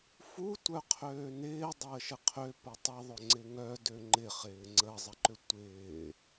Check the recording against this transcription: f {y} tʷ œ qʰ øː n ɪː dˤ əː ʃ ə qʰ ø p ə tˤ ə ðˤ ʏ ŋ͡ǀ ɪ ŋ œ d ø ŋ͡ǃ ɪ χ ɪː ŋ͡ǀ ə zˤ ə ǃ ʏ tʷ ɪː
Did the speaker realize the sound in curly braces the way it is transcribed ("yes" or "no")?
no